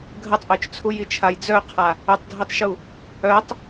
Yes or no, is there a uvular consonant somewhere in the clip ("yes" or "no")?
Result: yes